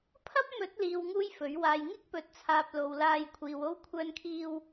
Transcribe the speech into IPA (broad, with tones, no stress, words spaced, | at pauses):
pʰɐ˥p̚mɵ˨˥t̚liː˨w ŋuː˥jfɵ˨˥ɥ waː˨j ŋɪ˥k̚pɵ˨t̚t͡sʰaː˨p̚ lo˨˧wlaː˧j kʷʰiː˨wo˥w kʷʰœː˧nkʰiː˧w